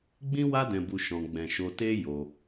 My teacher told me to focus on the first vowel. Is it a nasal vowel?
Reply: yes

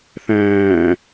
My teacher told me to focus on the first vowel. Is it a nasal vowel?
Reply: yes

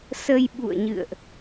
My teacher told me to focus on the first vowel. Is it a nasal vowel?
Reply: no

